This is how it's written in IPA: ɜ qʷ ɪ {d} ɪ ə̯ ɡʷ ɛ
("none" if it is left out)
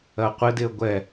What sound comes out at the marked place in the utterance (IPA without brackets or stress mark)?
d